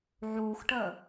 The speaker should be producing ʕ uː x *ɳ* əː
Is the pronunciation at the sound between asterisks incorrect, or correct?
incorrect: ʈ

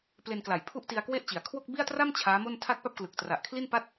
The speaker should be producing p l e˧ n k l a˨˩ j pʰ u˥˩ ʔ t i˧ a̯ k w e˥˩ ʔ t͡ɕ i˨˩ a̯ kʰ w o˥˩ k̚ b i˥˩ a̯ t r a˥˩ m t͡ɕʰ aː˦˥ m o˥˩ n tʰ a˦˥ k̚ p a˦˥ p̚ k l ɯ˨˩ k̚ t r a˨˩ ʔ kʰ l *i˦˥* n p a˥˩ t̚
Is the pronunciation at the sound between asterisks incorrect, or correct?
incorrect: i˥˩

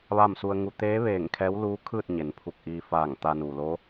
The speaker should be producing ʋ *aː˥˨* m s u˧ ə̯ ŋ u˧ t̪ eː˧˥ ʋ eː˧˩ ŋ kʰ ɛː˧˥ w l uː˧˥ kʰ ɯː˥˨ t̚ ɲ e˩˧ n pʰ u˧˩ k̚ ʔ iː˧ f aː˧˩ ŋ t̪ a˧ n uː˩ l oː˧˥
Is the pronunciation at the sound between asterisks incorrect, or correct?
correct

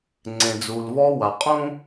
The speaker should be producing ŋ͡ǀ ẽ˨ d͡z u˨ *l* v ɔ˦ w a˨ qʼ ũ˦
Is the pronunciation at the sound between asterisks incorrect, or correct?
correct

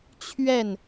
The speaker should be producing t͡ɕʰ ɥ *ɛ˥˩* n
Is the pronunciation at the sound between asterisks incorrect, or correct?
correct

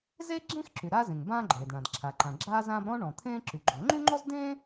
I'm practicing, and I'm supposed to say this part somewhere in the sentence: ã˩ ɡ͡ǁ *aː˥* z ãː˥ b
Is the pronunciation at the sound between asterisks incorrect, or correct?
correct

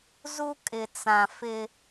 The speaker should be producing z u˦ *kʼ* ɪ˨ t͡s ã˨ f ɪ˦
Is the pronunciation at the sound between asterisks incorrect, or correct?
correct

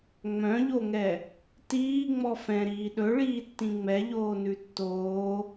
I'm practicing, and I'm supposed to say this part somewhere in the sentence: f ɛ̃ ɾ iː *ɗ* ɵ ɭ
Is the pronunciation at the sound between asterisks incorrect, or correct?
correct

